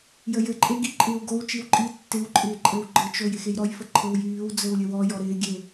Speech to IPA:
j ə j ɘ ǃʼ e ɡ i ǃʼ ɪː w ɡ o w t͡ʃ i w ǃʼ i tː ɪ w ǃʼ ɪː ǃʼ ɘ w ɡ͡ǃ ɘ t͡ʃ o j ɪ x e j ɾ ɔ j f ə ǃʰ ɘ w j yː w d͡z ɘ w lʲ ɘ w ɔ j ɔ ɾ ɪː ɡʲ e

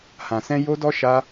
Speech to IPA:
h ã˨ s ɛ̃˧ j o˦ d ɔ˦ ʃ a˦

